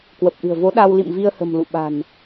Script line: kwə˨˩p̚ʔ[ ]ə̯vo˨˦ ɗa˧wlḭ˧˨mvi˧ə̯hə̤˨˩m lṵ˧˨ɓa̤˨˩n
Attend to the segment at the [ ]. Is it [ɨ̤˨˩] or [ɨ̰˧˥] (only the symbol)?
ɨ̤˨˩